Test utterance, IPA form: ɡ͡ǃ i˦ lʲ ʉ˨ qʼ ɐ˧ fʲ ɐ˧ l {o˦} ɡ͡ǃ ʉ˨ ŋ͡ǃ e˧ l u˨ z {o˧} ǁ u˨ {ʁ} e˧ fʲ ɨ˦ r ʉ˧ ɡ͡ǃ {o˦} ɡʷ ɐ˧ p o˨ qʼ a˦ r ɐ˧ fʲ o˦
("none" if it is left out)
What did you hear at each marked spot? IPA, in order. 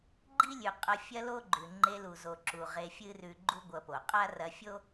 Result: o˦, o˨, ʁ, u˦

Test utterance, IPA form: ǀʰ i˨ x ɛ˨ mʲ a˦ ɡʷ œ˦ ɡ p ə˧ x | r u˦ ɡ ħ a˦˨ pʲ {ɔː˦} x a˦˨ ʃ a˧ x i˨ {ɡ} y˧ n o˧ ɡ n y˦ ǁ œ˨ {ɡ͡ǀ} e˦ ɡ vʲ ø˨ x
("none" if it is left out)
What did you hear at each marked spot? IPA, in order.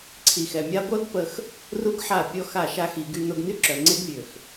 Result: ɔ˦, ɡ, ŋ͡ǀ

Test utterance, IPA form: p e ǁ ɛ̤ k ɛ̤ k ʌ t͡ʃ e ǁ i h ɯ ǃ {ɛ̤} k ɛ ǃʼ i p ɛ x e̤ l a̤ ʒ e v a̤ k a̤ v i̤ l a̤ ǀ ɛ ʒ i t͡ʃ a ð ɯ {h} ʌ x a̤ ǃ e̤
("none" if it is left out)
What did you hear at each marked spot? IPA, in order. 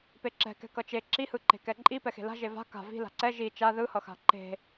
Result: e̤, h

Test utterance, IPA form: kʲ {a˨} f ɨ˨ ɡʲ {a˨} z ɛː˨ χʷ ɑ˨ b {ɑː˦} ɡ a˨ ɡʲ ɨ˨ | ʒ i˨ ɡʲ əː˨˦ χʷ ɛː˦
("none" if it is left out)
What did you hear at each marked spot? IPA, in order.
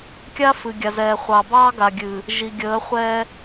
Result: a˦, a˨, ɑː˦

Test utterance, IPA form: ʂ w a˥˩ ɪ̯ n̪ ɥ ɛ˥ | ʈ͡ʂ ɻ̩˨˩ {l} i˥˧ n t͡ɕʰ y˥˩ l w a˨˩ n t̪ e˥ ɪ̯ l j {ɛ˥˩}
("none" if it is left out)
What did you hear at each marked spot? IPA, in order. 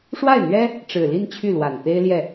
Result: l, ɛ˥˩

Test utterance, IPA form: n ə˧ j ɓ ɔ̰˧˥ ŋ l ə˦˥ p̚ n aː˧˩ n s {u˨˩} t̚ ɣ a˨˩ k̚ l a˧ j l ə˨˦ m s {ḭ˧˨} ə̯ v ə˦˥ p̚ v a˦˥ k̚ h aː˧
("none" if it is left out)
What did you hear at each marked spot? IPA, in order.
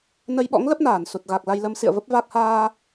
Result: u˨˩, ḭ˧˨

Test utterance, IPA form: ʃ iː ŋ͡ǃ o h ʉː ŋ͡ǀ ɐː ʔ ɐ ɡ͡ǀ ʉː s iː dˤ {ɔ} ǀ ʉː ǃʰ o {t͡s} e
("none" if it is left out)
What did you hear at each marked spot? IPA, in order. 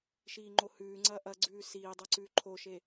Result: ɵ, ʃ

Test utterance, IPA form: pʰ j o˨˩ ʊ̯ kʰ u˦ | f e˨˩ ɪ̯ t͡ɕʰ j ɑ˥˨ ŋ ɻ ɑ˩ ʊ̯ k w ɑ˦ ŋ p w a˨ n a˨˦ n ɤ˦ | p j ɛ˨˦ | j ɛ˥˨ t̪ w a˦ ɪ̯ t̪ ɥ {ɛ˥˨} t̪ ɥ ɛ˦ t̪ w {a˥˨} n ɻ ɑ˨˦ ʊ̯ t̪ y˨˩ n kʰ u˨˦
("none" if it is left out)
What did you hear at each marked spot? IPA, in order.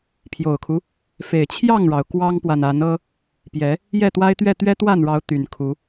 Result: ɛ˥˨, a˥˨

